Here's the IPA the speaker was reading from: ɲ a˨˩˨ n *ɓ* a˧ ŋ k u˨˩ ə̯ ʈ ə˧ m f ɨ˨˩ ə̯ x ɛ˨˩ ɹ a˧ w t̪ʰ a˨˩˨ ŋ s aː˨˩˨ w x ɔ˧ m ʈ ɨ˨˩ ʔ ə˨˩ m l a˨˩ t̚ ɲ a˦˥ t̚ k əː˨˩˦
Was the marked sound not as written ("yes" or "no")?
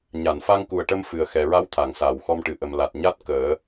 yes